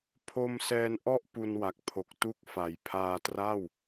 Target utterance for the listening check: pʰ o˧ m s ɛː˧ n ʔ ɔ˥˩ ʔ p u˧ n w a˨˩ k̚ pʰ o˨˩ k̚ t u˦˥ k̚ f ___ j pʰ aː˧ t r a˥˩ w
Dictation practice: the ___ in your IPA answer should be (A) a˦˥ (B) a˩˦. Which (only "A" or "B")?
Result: B